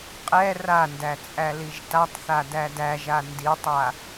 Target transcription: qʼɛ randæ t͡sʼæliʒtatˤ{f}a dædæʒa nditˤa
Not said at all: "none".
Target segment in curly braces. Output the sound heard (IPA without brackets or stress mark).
θ